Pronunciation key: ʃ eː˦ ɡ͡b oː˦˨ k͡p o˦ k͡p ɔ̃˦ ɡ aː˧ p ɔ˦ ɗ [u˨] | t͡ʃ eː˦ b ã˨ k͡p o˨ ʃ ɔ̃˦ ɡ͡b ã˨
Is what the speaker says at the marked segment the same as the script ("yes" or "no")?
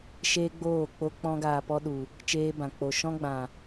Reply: yes